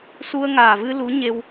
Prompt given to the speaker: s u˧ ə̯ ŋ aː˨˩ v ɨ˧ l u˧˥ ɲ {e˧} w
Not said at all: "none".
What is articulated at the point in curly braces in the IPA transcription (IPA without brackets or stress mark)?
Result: e˧